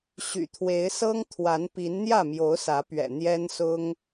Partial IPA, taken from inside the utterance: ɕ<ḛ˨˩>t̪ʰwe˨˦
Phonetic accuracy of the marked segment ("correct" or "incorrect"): incorrect